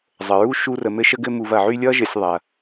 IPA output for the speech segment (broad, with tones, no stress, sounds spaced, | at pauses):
zˤ ə˩ ɹ u˥ ʃ u˦ r ə˨ m ɘ˥ ʃ ə˥ ɡ ɘ˥ m u˨ v ɐ˩ ʕ y˦ lʲ ʌ˥ ʒ ɘ˨ sʲ ðˤ ɐ˩